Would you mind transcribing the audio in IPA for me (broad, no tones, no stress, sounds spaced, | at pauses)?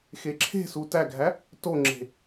x e ǁʰ e̤ s u t æ ɡʱ æ | t o ŋ͡ǁ e̤